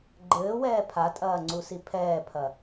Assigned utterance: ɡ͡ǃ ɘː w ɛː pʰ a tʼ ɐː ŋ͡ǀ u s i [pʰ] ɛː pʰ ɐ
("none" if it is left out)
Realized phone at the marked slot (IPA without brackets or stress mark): pʰ